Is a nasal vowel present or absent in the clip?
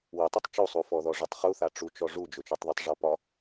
absent